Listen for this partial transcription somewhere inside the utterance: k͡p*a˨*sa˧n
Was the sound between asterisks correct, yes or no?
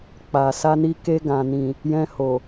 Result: yes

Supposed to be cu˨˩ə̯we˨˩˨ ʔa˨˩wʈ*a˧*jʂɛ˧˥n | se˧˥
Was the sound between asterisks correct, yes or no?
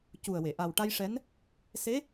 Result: yes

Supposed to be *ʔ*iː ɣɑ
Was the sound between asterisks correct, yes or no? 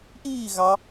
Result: yes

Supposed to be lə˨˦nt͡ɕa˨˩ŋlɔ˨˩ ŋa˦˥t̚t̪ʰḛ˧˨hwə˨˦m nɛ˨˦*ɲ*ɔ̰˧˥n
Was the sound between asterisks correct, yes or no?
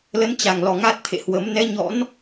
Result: yes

